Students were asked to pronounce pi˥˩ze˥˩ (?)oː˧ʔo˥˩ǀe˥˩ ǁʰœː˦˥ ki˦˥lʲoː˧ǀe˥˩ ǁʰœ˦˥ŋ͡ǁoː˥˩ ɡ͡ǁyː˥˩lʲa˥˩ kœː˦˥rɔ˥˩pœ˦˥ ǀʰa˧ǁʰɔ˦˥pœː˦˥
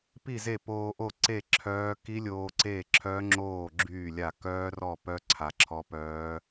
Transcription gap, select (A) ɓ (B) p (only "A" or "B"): B